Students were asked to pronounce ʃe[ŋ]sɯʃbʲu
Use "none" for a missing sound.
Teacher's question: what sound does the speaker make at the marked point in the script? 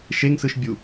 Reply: ŋ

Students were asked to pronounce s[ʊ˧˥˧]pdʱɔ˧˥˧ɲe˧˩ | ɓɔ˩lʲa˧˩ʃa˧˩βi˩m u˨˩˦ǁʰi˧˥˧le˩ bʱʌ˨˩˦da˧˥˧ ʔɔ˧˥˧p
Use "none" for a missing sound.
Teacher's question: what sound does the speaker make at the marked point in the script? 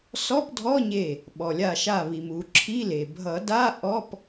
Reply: ɔ˧˥˧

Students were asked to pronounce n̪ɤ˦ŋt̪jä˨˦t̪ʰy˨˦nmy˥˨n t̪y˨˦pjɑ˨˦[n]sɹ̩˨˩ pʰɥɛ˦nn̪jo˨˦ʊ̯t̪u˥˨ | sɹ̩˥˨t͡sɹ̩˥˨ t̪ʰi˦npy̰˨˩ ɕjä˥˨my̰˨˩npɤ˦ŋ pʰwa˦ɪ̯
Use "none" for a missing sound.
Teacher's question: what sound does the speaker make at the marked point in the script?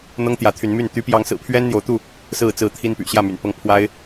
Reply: ŋ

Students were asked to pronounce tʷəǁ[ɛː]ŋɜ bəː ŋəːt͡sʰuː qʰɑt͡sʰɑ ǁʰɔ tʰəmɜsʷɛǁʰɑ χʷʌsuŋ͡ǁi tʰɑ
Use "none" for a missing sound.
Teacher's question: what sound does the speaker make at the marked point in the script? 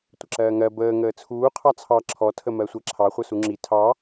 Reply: ɜː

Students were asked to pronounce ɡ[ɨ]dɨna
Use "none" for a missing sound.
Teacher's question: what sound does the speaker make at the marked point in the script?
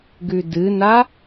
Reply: ʉ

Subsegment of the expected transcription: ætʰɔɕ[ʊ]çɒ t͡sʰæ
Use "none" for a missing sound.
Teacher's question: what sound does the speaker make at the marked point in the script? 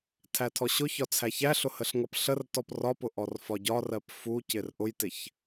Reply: ʊ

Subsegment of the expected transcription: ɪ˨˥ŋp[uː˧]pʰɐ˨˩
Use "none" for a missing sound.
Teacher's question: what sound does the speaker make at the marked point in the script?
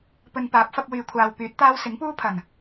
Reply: uː˥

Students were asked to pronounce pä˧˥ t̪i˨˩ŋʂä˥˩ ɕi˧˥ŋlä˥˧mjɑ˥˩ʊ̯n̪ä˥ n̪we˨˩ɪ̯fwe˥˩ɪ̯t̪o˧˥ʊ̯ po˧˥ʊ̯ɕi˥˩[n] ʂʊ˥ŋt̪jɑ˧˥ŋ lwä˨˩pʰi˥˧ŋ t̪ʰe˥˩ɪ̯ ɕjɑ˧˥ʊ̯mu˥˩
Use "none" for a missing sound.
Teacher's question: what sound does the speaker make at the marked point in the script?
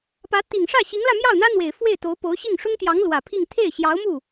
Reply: ŋ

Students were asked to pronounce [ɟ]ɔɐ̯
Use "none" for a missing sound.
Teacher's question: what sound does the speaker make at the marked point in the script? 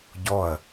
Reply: ɟ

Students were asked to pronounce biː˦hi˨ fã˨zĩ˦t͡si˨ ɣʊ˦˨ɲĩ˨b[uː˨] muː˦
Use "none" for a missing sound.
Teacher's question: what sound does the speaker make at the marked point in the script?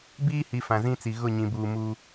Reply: uː˨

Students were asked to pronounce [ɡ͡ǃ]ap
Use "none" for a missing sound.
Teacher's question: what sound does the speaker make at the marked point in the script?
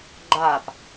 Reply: ɡ͡ǃ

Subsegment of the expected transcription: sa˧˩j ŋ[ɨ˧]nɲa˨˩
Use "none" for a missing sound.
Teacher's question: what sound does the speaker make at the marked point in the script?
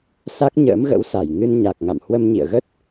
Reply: ɨ˧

